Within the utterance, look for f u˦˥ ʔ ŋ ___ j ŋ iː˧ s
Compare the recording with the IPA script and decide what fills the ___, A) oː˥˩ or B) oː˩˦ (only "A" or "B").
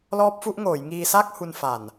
B